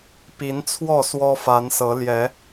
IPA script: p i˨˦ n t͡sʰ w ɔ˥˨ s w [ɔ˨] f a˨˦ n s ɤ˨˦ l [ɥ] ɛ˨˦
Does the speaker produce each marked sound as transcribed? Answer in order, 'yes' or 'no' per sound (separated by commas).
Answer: no, no